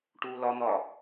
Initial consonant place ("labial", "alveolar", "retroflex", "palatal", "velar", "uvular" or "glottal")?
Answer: retroflex